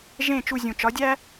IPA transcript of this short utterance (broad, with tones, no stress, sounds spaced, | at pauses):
ʒ ẽ˥˩ t͡ʃ u˥˩ zʲ ũ˩ t͡ʃ ɒ˩˥ dʲ æ˥